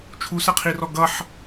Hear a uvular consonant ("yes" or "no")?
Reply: yes